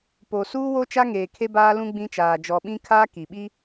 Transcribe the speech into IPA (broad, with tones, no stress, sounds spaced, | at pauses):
p o˨ s uː˦ w o˦ t͡ʃ a˦ ŋ eː˨ kʰ e˦ b aː˦ l ũ˦ ɡ͡b ĩ˦ t͡ʃ aː˨ d͡ʒ ɔ˨ ɓ ĩ˦ kʰ aː˦ k i˨ ɓ i˦